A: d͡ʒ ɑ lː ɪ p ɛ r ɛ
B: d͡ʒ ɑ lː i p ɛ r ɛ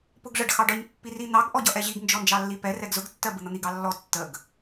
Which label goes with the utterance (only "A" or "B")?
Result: B